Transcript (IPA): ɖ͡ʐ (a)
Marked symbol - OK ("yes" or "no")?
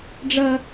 no